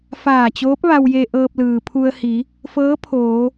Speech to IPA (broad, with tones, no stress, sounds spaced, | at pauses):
f aː˧˩ t͡ɕ oː˧˥ p̚ ʋ a˧ w j e˧ ʔ ɤː˧ p̚ l ɯː˩ pʰ u˧ ə̯ h i˩˧ | f ɤː˧˥ pʰ oː˩˧